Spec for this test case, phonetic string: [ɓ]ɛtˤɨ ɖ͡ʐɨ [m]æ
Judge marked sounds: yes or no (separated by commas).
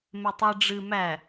no, yes